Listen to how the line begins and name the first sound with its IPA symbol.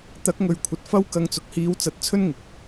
t̪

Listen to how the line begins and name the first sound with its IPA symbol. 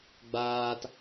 ɡ͡b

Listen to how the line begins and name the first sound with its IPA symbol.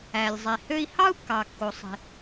æ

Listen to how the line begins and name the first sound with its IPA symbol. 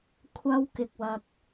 kʷʰ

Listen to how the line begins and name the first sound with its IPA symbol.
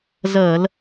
z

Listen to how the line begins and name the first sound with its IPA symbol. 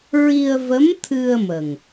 ɹ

